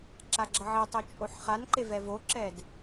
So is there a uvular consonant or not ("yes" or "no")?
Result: yes